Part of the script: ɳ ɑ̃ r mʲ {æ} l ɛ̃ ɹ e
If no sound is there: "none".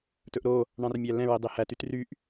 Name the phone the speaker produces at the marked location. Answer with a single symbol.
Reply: æ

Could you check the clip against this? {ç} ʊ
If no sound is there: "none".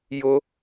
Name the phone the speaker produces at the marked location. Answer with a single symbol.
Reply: j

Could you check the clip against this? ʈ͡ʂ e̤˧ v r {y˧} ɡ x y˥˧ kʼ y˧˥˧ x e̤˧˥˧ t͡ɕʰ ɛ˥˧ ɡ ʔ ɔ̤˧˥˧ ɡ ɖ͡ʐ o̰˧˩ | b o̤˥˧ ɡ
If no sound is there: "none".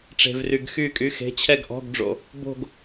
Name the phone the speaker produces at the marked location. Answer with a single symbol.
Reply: y˧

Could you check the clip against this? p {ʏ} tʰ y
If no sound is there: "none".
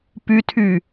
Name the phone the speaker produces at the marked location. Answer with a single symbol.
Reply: y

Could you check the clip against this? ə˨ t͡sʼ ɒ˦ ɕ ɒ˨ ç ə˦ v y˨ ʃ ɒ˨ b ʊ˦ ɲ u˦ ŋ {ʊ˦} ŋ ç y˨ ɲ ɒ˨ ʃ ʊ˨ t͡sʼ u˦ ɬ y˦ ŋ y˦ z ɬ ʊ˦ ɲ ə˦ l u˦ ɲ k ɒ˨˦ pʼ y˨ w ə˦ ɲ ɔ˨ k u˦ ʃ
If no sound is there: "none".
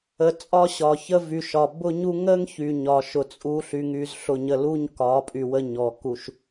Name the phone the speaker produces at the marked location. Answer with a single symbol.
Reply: ə˦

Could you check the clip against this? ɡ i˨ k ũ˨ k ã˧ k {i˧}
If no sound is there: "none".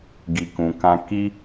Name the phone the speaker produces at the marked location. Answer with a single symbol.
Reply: i˧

